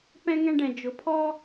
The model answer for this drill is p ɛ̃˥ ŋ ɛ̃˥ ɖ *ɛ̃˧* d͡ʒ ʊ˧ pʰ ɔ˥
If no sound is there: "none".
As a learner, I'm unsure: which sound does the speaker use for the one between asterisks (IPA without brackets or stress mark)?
ɛ̃˧